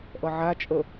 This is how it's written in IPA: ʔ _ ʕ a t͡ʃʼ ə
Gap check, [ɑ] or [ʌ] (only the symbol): ʌ